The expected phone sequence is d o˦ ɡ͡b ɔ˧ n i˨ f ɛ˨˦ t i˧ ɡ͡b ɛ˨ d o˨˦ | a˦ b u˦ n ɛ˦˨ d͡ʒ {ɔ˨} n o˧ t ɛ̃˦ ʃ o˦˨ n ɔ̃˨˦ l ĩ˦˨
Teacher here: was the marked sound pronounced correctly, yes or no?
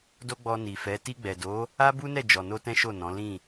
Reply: yes